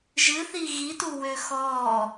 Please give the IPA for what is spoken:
ʒ ɨ θ i ɣ i t u w ø x ɔ

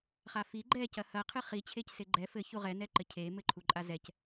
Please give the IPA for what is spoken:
χ a f i ɡ͡ǃ ɛ c ɐ h ɐ qʰ ɨ χ i t͡ɕʰ e c s e ɡ͡ǃ ɛ f ɘ ç u ʁ ɛ n ɛ ǃ ɘ cʰ e m ɘ ǃʰ u ǃʼ a z ɛ c

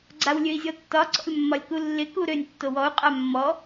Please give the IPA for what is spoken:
ɡ͡ǀ a w lʲ ø i̯ zʲ ɔ tː ɒ ǀ ɔ̰ lʲ mː ɒ lʲ k u lː ɪ k u ɾ ø nʲ tː o w ɔ u̯ qʼ a mː ɔ

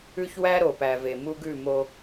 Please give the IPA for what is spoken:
ʉ˦ ç w æ˦ ɾ o˨ p æ˨ v e˨ m u˦ ɡ ʉ˦˨ m o˦

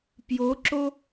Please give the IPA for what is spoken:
p j o ǁ o

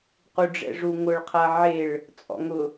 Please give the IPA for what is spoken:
q u ɖ͡ʐ ɛ̰ ʐ u ŋ ʊ ɭ qʰ a ʕ e ɭ | t͡sʼ ɔ̰ ŋ ʊ

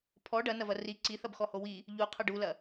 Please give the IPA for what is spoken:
pʰ ɔ ɖ ɐ n ɐ v ɐ r i ǀ i θ ɐ b x ɔ h o w i | ʎ u qʰ ɐ ɖ u l ɐ

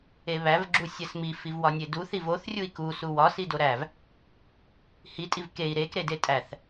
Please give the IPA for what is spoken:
e β æ v ɡ͡ǁ u sʲ æ s m i f i v w ɒ nʲ e d u θ i v o θ rʲ u i̯ k u s u w ɒ s i d o ɾ æ v | h i tʼ i v k e i̯ ɾ e k ɾ e d e tʼ æ θ

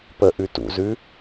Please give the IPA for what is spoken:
p ə ʔ ʉ t ṵ z ʉ

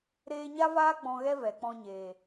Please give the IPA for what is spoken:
ɾ eː˦ ɲ a˦ v aː˦ ɡ͡b ɔ̃˧ ɣ ɛ˦ v ɛ˨ k͡p ɔ̃˧ ɲ eː˨

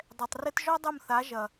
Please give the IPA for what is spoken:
dˤ ɛ˨ tˤ r ɘ˦ t ʒ ɔ˦ dˤ o˦˨ m θ a˨˦ ʒ ɐ˨

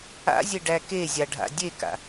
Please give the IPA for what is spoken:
a̰ zʲ e ɖ æ k e zʲ a ɖʱ a̰ dʲ e k a̰

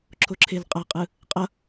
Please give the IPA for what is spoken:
ǁʰ o ǁʰ e l qʼ a qʼ ɯ | qʼ ʌ

